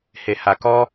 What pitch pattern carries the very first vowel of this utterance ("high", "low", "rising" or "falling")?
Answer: low